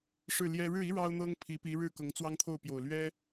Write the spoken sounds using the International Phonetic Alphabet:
ʂ ɻ̩˥˩ l j ɛ˥ ɻ ɻ̩˥˩ i˥ ɻ ɑ˥ ʊ̯ n̪ ɤ˥ ŋ pʰ i˧˥ p i˧˥ ɻ ɻ̩˥˩ k ɤ˧˥ ŋ t͡s w ɑ˥ ŋ t̪ʰ o˥˩ ʊ̯ p j o˨˩ ʊ̯ l ɥ ɛ˥

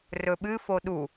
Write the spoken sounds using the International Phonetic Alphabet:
r ɵ ɓ ɨ f o ɗ u

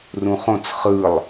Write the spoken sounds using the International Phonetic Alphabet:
r ũ χ õ t͡s χ ɯ lˠ

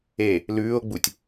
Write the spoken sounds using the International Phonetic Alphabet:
e | l ʉː o̯ ɡ͡b u tʲ

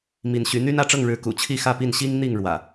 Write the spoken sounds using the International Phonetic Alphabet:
m i˨˦ n ɕ y˨˦ n̪ y˦ n ä˥˨ ʈ͡ʂ ɤ˥˨ ŋ ɻ ɻ̩˨˦ k ṵ˨˩ t͡ɕʰ i˥˨ x ä˥˨ p i˥˨ n ɕ i˦ ŋ n̪ i˥˨ ŋ ɻ w ä̰˨˩

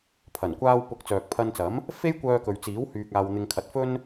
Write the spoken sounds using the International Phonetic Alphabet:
pʰ ɐ˨˩ n kʷ aː˧ w p ʊ˨˥ k̚ t͡s œː˨ k̚ pʰ ɐ˧ n t͡s ɐ˨˥ m | f e˥ j kʷ œː˧ k ɵ˨ ɥ t͡s iː˨˥ w h yː˧ k̚ aː˧ w n̪ ɪ˧ ŋ kʰ ɐ˨˥ t̚ f ɵ˥ n

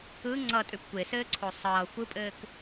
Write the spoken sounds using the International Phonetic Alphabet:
ɯ ŋ͡ǀ ʌ tʼ ʉ p kʷ e s ɘː ǀʰ o sˤ ʌː xʷ ɯ pʼ ɘː k

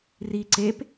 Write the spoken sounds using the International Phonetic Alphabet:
r i ǀ e p

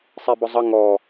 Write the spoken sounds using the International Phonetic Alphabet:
sˤ i b ʊ zˤ ə ŋ ɔ

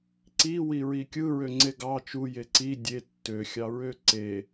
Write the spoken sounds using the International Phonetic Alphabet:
ǀ i w i ɹ i kʲ ɯ ɹ ø ŋ͡ǀ e ɡ ɑ t͡ʃ u j e ǀ i dʲ e tː ø xʲ ɑ ɹ ø ǀ e

